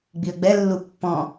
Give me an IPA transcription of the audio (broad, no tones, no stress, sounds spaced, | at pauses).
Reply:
ɡ͡b i ə̯ ɡ͡b ɛ lː u pː ɔ̃